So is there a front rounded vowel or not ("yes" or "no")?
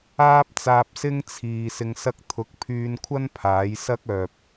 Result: yes